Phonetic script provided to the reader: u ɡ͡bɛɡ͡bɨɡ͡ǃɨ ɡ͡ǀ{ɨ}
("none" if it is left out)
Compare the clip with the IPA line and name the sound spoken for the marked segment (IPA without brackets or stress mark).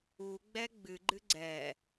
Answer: ɛ